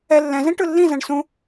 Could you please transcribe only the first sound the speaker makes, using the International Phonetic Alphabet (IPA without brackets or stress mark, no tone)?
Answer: ɛ